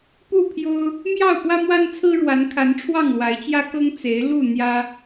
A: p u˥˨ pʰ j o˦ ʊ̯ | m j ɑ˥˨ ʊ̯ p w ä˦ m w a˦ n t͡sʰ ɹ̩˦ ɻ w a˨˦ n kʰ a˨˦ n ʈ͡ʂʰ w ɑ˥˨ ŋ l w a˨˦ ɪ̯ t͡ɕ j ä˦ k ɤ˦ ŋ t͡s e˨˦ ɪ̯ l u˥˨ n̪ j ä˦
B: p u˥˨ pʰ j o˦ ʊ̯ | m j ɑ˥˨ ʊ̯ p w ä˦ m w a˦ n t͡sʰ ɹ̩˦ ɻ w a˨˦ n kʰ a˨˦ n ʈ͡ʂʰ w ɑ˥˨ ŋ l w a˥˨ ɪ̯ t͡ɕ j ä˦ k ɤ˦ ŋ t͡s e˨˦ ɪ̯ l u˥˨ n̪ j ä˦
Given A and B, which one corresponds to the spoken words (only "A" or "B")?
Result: A